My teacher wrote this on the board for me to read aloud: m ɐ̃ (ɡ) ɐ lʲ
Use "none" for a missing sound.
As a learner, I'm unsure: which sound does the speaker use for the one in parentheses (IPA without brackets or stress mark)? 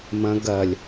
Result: ɡ